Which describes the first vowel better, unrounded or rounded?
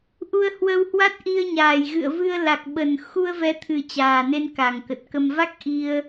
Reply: rounded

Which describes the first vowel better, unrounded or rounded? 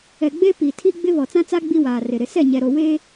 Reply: unrounded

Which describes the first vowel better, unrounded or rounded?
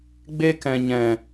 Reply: unrounded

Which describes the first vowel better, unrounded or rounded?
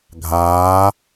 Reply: unrounded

